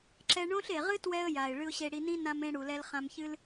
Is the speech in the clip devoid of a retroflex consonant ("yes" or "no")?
no